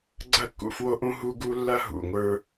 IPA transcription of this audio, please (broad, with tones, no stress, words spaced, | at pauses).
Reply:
ɡ͡ǀɐ˦˨kːṵ˨ fwo˦ʔũ˦ ɦu˦ɡu˦ lːɐ˦ɦṵ˨ŋʷə˞˦